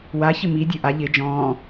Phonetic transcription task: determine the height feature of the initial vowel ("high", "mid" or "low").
low